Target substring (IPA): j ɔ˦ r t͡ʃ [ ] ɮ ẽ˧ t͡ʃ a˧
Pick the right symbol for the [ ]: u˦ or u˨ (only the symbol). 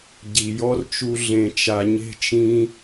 u˦